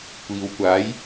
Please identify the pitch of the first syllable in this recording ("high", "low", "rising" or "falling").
low